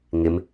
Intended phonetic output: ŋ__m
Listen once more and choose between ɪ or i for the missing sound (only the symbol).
ɪ